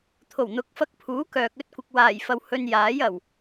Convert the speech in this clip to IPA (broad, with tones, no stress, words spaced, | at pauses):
t̪ʰo˨˩wn̪ʊ˨˥k̚fɐ˧k̚ pʰuː˨˥kœː˨k̚ ɵ˥t̚kʷɪ˨k̚ waː˨˩jfɐ˨w hɵ˧njaː˨˥j ɐ˨˩w